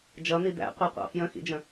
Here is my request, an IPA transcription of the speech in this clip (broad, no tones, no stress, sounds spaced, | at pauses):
d͡ʒ ʌ n̪ i d̪ æ̰ qʷ ɛ qʷ ɑ̰ f j ə̃ x ḭ d͡ʒ ə̃